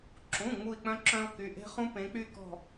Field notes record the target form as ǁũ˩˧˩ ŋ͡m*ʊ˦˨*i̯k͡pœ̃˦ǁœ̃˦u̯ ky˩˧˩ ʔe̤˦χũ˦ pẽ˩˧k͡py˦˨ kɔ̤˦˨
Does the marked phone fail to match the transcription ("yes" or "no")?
yes